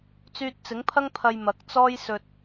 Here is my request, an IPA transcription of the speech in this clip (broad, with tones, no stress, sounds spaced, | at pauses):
t͡s yː˧ t̚ t͡s ɪ˨˥ ŋ pʰ ɐ˥ ŋ pʰ ɐ˧ j m ɐ˨˥ k̚ t͡s ɔː˥ j s ɵ˧ t̚